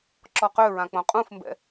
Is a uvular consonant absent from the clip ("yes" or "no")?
no